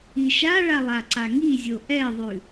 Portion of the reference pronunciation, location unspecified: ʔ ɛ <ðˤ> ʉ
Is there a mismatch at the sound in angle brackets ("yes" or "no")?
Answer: no